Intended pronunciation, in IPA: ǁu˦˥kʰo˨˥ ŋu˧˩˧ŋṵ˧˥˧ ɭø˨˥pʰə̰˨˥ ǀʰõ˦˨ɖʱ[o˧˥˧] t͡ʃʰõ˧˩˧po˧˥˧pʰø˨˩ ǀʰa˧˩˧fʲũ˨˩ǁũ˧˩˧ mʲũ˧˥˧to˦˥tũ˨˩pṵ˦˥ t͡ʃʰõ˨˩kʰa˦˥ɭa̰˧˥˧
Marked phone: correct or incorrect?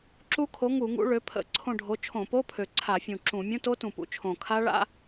incorrect